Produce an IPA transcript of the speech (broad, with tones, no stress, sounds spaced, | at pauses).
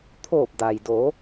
t̪ʰ oː˧˩ p̚ d a˩ j d oː˩˧